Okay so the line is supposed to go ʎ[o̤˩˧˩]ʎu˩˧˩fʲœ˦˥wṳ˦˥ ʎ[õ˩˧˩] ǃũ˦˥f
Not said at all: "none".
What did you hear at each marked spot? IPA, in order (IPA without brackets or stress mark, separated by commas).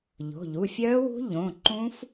o̤˩˧˩, õ˩˧˩